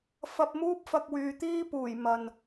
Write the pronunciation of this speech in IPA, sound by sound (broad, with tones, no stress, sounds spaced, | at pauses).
f ɐ˧ p̚ m uː˥ p̚ f ɐ˧ k̚ w yː˨ t̪ iː˥ p uː˨˩ j m ɐ˨ n